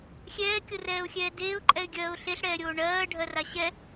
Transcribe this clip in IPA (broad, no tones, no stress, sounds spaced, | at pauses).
xʲ ɛː kʲ o r ɛː ʊ̯ xʲ ɛː d eː ʊ̯ ǃʼ ɛ ɪ̯ ɡʲ ɜː ʊ̯ ɬ e ɬ ɽ ɛː ɾʲ oː ɳ ɜː ɖʱ ɜ r a ɕ ɛ